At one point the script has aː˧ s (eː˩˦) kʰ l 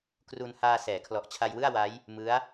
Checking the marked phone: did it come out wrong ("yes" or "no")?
yes